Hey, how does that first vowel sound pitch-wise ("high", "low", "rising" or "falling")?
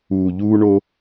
low